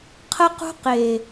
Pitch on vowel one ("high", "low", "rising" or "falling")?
high